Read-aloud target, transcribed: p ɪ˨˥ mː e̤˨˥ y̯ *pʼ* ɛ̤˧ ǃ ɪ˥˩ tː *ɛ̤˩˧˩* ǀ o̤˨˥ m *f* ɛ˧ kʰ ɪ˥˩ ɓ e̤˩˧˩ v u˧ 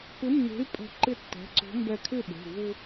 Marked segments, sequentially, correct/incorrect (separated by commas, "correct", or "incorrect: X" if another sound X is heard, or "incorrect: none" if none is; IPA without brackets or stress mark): correct, correct, incorrect: b